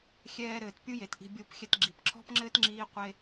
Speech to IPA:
xʲ ɛː˧ ɾ ɘː˨ t pʲ u˦ j e˨ t ʔ i̤˧ bʲ o˦˨ p xʲ ɛ˧ t ɡ͡ǁ i˨ p ǁʰ ɔ̤˦ p ŋ͡ǁ ɘː˦ t ŋ͡ǁ iː˦ qʷ e˦

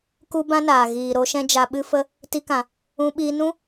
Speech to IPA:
k u˦ b ã˦ n aː˨ ɣ iː˨ ɾ o˧ ʃ ɛ̃˧ d͡ʒ a˨ ɓ ɨ˧ f ə˧ | t i˧ k ã˨ | ũ˧ ɓ iː˧ n ũ˦

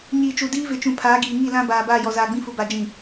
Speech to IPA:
ɲ iː˨ t͡ʃ u˨ d iː˦ v ɪ˨ t͡ʃ ũ˨ pʰ aː˨˦ ɡ iː˨ ŋ i˦˨ l ã˦ b aː˨ b aː˦˨ j ɔ˨ z aː˨ ɡ͡b ĩ˦ f u˨ b a˨ d͡ʒ ĩ˨

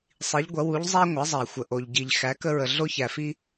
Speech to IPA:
sˤ i˩˧ ʎ ɡʷ ɐ˩˧ w u˩˧ ʎ zˤ æ˧ ŋʷ ɐ˩˧ zˤ æ˩ xʷ ə˩ ʔ o˩ ʎ ɟ i˩ ʎ x æ˩˧ k ə˧ ɹ ə˩ ɮ o˧ ç æ˩ f i˧

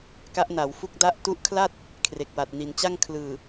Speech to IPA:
k a˦˥ ʔ n a˩˦ w f u˥˩ k̚ d a˥˩ ʔ t u˦˥ ʔ kʰ l a˥˩ t̚ | kʰ r e˨˩ k̚ w a˨˩ t̚ n i˩˦ n t͡ɕ a˥˩ ŋ kʰ l ɯː˨˩

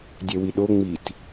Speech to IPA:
dʲ ɛ w i ɗ o ŋ͡m i t

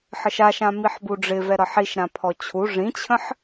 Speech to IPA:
ħ ə ʃ a ʃ ã m i ħ b u ɖ͡ʐ ɪ v ɛ ɾ ʌ ħ i ʃ ɾ ã pʰ ɔ t͡ɕʰ u ʐ ĩ t͡ɕʰ ə̃ ħ

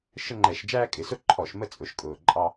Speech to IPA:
ʃ ə˦ ŋ͡ǃ ɛ˧˩˧ ʃ d͡ʒ æː˦ kʼ ɪ˩˧ s ʊ˥˩ ǃʰ ɔ˧˩˧ ʃ m ə˦ t͡sʼ ʊ˩˧ ʃ kʼ ʊː˨˩ ǃʼ ɑ˦

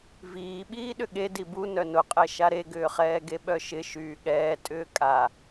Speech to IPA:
v iː ɓ iː ɗ ʏ ɠ e d i b u n œ n ʊ qʼ ɛ ʃ a ɾ e ɡ ʏː χ ɛː ɡ e ɓ œ ʃ ɪ ʃ yː ɠ ɛː tʼ ʏː kʼ a

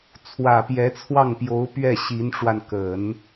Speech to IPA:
t͡sʰ w ä˨˩ p j ɛ˧˥ t͡sʰ w ɑ˥˩ ŋ p j o˧˥ ʊ̯ p ɥ ɛ˥˩ ɕ i˧˥ n ʈ͡ʂ w a˧ n k ə˨˩˦ n

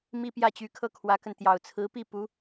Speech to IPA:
m i˥˧ p j ä˥˩ t͡ɕ y˧˥ kʰ ɤ˥˩ kʰ w ä˧˥ k ə˧ n t̪ j ɑ˨˩ ʊ̯ t͡sʰ ɹ̩˧˥ p i˥˩ p u˧˥

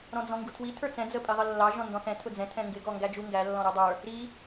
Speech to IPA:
ɾ ɔ̃ d͡z ɔ̃ ŋ ɡ u tʰ w i tʰ ə˞ t͡s ɛ̃ d͡z ə pʼ i ðˤ ə lː ɑ ʒ ɔ̃ n d ɔ̃ θ ɛ̃ tʰ ʊ d͡z ɛ̃ tʰ ɛ̃ ŋ ɡ ɪ ɡ ɔ ŋ ɡ æ d͡ʒ u ŋ ɡ æ lː ɔ̃ ɾ u dˤ ə˞ | ɾ i

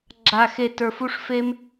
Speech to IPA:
ɡ͡ǁ a˧ x e˧ t ə˞˧ f u˦ ʂ f e˦ m

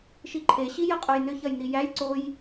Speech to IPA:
ʃ i ǃʰ e ɕ i j ɐ qʼ o j n ʏ ç ɐ j n i j æ j ǀ o j

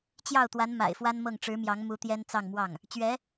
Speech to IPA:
t͡ɕ j ɑ˥˩ ʊ̯ t̪ w a˧˥ n m a̰˨˩ ɪ̯ f w a˥ n m ɤ˥˩ ŋ ʈ͡ʂ ɻ̩˧˥ m j ɑ˧˥ ŋ m u˧˥ t̪ j ɛ˥ n t͡s ɑ˥˧ ŋ m w ɑ˥˩ ŋ | t͡ɕ ɥ ɛ˧˥

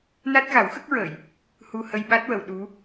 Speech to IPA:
n a˦˥ t̚ ɣ a˨˩˦ w x ə˦˥ k̚ ɹ əː˨˩˨ j | h u˧ h ə˧ j ɓ a˦˥ t̚ w ə˨˩˨ w ɗ u˧˥

